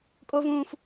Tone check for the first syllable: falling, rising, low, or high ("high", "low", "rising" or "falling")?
high